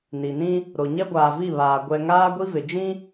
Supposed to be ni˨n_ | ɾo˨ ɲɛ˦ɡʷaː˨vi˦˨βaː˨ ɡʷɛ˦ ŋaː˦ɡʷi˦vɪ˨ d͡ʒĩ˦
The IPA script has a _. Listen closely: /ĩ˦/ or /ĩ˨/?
ĩ˦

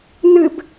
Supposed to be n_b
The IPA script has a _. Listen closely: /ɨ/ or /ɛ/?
ɨ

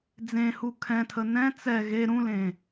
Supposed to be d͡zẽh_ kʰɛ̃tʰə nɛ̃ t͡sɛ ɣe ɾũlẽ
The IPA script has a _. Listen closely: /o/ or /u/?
u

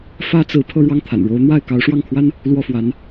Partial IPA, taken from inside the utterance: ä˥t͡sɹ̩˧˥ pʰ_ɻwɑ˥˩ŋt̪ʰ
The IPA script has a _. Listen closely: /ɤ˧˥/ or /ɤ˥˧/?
ɤ˥˧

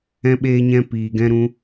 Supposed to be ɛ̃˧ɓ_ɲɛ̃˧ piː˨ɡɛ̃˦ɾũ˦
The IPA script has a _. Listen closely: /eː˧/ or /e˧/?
eː˧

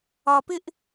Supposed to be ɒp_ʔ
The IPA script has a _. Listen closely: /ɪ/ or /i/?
ɪ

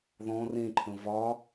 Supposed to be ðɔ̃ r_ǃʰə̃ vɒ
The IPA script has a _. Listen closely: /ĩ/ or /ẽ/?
ẽ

